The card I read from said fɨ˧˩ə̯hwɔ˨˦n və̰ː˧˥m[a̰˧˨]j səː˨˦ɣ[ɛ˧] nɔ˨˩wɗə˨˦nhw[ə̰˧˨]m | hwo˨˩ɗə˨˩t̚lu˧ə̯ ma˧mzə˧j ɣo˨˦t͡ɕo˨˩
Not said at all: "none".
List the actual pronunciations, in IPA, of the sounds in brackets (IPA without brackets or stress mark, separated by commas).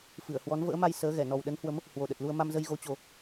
a˧, ɛ˧˩, ə˨˦